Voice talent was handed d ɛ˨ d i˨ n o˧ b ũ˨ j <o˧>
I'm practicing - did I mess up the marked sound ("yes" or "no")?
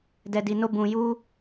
yes